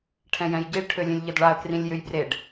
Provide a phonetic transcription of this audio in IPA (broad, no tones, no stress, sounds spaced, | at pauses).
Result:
ʈʰ ɛ̃ j ɛ̃ j ɟ i ɭ ʈʰ ø lʲ ẽ lʲ ʎ ɘ d ɭ a ə̯ k r ĩ lʲ j ø j b r e ɖ